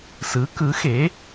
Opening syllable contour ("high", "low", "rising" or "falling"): rising